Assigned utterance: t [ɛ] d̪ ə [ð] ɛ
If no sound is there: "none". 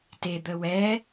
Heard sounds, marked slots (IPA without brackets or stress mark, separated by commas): e, w